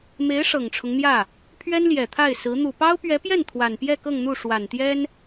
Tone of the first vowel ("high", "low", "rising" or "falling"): rising